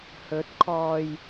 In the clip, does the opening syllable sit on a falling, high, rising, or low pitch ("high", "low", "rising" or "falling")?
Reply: rising